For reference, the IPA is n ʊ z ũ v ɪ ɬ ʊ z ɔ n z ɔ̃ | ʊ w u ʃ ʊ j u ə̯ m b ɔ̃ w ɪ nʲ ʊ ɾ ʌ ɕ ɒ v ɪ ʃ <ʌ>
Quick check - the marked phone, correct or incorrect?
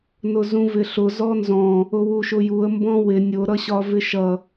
correct